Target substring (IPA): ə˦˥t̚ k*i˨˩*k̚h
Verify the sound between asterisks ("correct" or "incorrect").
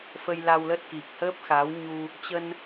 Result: correct